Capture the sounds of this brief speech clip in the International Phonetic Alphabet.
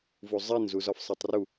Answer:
vuzˤenzuz ɒfsˤetˤru

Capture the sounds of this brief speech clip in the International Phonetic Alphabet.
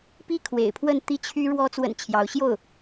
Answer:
pi˥kʰwḛ˨˩ɪ̯pʰwə˥˧n t̪i˥˩t͡ɕʰy˥ ɻwɔ˧˥t͡swə̰˨˩n t͡ɕʰjɑ˧˥ʊ̯ ɕjo˥˩ʊ̯

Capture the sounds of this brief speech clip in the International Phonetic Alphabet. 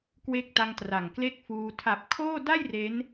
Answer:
kwe˦˥k̚ta˧ŋtra˨˩ŋ kle˥˩k̚fuː˧ tʰa˨˩p̚ kʰoː˥˩ da˥˩j re˦˥n

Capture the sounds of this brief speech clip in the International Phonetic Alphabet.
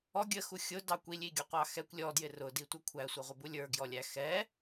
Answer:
ɔ ɡʲəxu xʲʊdɑ kʷilʲiɡʲɔqʷɑ xɛkʷ lʲɔdjɪ rʊditʷʌ kʷʰæsʷʌʁʷəbu lʲə˞ɡjɔlʲæ xɛ

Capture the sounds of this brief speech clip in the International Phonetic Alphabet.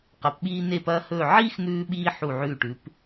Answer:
qɐ˩˧pɓiː˧ ne˧˩pɐː˧hɵː˧˩ ʕiː˥xn̪ʉː˧ɓiː˧ ħu˧˩ʕʉː˧˩ʈʉː˩˧p

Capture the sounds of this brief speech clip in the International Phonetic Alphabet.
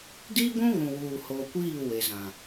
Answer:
diː˦ɡʷũ˦ ɣũ˨wuː˨hoː˨kʷiː˦˨ we˨zã˨

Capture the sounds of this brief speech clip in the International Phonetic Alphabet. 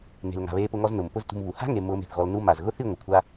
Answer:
ne̤˨l ŋa̤˨βeː˧pʊ˧ŋɔ˧z nʊ˨mpʊ˦ztṳ˧mβu˨ ha̤˦ŋe˨ mʊː˧me̤˨θɣɔ˧l nu˦ ma˨z ɣʊ˦θi˦˨ ŋʷɪ˨kʷʰa˦

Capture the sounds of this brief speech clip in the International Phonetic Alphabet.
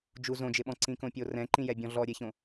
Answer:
d͡ʒu zõd͡ʒɪɓɔ̃ ǀĩkõpʲorɛ̃ ǃĩjɛbʲɔ̃ɮɔ ɾʲeçõ

